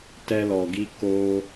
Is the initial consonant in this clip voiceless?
yes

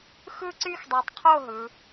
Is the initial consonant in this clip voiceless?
yes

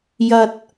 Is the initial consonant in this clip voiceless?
no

